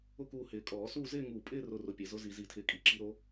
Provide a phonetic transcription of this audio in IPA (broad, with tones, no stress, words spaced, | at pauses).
ʊ˥˧kuː˧ hɪː˨˩˦kʼɔː˨˩˦suː˥˧ zɪː˥˧ŋuː˧˩pʼɪː˥˧ rʊ˥˧rʊ˧pʲe˨˩˦ zʊ˧˥zi˨˩˦zi˨˩˦tʰɪː˧ kʼi˧ǁi˧˥ɾo˧˥